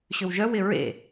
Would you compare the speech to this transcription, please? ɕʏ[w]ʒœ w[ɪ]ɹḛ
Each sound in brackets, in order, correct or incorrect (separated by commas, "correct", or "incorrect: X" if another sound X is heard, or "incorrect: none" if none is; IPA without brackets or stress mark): correct, correct